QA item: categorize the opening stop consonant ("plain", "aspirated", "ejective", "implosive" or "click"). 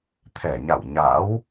aspirated